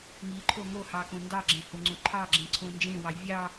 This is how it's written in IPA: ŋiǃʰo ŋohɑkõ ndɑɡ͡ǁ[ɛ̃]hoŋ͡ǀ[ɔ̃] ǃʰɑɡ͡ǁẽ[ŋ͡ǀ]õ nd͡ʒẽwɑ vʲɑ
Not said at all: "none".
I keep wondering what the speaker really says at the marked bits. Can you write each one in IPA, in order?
ẽ, õ, ǀʰ

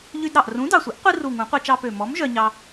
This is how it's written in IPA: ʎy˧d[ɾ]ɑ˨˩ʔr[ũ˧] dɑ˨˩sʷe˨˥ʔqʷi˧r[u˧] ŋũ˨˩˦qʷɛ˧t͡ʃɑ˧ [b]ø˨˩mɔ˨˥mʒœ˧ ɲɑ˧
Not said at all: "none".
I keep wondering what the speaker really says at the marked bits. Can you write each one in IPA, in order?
ɾ, ũ˨˥, u˨˩, p

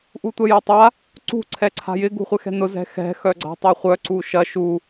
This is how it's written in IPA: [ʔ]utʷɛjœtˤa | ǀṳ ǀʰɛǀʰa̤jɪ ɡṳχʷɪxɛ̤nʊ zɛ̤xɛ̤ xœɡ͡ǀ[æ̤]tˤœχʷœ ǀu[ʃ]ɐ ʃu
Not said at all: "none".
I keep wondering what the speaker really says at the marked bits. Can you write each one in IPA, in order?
ʔ, a̤, ʃ

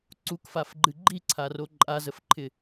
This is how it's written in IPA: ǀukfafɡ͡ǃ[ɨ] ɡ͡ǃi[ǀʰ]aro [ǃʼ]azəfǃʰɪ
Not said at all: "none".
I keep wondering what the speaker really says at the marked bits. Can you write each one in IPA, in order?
ɨ, ǀʰ, ǃʼ

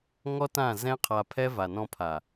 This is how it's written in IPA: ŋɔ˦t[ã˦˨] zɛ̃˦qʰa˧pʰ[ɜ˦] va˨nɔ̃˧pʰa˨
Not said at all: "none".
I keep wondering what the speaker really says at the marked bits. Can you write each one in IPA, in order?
ã˦˨, ɛ˦

